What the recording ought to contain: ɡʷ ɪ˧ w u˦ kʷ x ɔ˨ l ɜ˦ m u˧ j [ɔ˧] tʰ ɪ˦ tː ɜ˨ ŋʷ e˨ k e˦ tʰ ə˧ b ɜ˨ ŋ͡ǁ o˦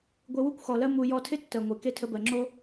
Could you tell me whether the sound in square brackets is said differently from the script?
no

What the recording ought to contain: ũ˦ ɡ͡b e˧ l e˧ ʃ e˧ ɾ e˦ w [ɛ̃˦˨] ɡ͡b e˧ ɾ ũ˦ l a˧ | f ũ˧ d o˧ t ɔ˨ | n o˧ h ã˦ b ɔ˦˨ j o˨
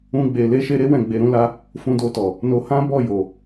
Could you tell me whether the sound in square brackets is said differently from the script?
no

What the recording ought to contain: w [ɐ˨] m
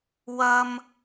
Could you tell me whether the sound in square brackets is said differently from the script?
yes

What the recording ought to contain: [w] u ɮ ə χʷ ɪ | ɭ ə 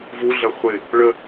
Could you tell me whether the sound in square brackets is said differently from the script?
yes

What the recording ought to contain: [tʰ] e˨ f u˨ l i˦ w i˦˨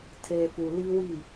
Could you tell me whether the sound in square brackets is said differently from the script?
no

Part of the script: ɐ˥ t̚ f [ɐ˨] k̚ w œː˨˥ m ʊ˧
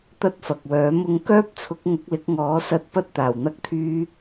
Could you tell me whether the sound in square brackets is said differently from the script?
no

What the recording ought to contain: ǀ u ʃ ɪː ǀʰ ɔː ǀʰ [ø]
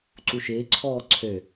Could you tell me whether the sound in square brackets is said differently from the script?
no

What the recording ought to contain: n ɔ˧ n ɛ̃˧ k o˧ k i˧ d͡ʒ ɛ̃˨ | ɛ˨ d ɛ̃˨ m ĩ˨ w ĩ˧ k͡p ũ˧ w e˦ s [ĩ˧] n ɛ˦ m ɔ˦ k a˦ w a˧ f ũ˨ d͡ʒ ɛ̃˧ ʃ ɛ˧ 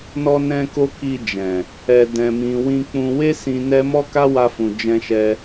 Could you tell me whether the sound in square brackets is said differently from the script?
no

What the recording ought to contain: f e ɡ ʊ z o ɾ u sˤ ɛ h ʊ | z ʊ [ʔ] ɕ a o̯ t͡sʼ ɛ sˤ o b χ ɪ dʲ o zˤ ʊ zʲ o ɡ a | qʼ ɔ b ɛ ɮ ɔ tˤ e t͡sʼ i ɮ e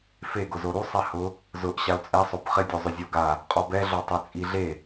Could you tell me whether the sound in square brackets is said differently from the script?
no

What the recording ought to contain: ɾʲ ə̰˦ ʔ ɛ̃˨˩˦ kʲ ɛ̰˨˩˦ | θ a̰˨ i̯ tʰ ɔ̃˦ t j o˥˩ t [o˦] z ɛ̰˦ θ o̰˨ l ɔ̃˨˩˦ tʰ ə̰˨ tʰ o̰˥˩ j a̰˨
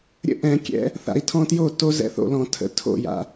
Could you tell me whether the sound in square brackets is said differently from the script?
no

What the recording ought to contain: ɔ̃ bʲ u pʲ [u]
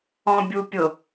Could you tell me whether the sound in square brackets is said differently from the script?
yes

